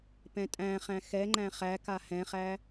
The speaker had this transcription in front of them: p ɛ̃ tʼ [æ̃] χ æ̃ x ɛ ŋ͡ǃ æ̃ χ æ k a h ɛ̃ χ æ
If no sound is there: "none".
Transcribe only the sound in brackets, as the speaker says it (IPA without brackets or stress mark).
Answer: æ̃